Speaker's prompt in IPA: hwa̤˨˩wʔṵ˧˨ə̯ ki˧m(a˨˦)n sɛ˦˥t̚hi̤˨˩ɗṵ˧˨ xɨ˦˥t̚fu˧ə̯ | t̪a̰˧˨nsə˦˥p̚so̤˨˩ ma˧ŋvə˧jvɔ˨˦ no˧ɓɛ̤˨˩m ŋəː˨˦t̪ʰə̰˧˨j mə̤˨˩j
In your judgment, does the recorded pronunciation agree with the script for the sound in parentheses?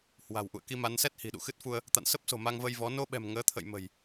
yes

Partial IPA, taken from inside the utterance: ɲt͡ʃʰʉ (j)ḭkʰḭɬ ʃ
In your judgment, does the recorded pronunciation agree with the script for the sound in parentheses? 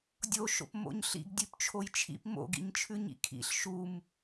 no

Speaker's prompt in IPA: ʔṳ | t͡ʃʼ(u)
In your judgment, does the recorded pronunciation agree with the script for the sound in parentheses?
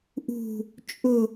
no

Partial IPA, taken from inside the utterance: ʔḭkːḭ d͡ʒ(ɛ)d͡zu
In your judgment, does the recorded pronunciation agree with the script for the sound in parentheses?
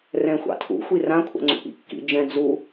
no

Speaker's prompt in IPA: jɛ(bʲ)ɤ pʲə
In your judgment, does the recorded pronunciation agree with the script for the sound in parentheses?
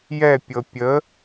no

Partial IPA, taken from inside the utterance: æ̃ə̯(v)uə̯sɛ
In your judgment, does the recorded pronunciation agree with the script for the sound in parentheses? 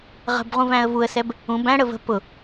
yes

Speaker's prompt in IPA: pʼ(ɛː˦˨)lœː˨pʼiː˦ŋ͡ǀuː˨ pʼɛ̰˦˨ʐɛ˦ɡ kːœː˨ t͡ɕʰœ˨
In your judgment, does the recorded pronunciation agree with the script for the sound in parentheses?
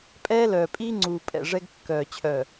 no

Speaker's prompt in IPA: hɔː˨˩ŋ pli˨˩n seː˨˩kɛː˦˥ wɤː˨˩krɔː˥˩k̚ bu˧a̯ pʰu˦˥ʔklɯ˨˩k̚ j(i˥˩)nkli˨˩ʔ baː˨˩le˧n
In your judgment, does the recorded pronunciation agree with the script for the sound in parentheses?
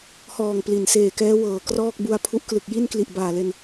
yes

